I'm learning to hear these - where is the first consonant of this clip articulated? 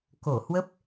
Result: velum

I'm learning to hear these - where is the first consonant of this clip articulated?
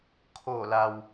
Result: velum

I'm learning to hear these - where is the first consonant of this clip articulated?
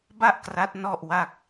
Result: lips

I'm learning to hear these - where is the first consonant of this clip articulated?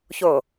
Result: palate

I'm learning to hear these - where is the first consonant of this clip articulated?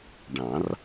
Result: retroflex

